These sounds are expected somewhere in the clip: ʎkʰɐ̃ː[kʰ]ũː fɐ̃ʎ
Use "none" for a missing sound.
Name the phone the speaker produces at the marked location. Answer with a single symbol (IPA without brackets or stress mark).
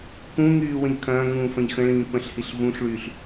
ŋ